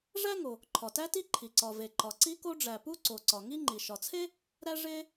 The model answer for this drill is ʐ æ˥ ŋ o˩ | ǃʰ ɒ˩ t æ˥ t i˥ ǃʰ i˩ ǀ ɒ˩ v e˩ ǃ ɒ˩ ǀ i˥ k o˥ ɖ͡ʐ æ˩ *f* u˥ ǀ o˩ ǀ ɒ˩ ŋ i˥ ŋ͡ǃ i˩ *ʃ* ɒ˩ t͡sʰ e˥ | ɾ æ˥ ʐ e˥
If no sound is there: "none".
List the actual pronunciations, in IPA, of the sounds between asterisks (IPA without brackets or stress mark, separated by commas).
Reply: p, ʃ